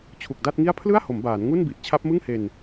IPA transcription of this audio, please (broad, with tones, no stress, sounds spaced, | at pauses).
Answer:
t͡ɕʰ u˨˩ k̚ d a˥˩ t̚ ŋ i˥˩ a̯ pʰ l ɯ˥˩ a̯ h o˩˦ m b aː˩˦ n ŋ u˥˩ n b i˨˩ ʔ t͡ɕʰ a˦˥ p̚ m ɯ˥˩ ŋ h e˧ n